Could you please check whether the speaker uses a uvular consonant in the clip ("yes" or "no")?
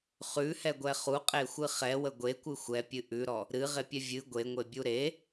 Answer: yes